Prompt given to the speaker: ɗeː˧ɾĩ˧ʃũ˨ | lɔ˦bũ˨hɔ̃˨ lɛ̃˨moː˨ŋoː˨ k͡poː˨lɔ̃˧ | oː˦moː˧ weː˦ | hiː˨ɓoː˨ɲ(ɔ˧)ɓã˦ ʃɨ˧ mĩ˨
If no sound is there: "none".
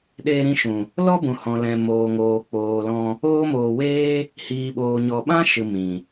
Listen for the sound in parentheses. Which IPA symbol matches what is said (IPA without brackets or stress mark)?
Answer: ɔ˨